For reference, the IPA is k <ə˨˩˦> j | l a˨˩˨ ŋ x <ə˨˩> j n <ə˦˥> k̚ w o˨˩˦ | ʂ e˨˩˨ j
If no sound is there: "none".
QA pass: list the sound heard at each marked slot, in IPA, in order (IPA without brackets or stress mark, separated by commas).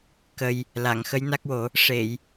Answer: ə˨˩, ə˧˥, a˦˥